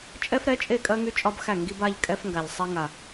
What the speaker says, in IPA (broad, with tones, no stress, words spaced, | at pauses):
t͡ʃʼɛ˦fɾɛ˨˦t͡ʃʼe˦˨kʼɜ˦ ŋy˦t͡ʃʼɒ˦bxæ˦˨ ŋɡi˦ba˦ʎ kʼɛ˦fŋɡa˨ʎ sˤɛ˦ŋa˨